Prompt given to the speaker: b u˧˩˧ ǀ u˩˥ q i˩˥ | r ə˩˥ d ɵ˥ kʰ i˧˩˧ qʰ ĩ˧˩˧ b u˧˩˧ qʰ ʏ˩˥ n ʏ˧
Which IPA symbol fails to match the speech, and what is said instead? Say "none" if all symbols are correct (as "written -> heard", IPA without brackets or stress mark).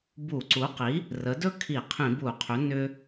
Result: none